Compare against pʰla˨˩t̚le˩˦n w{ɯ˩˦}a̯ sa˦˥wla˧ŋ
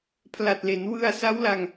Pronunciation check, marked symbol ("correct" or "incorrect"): incorrect